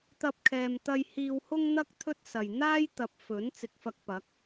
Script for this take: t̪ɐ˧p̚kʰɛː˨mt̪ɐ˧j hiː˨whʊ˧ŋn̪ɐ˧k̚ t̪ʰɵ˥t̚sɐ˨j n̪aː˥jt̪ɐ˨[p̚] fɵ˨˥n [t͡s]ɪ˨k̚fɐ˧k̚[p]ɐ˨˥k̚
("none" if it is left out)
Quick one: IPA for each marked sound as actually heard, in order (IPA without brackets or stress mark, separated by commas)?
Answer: p̚, t͡s, p